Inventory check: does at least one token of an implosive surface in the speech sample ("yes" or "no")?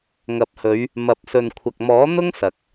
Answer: no